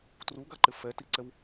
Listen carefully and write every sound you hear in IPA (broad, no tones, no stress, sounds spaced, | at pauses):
t r u ɡ a ǃ ɪ f ɛ t i ǀ ɛ w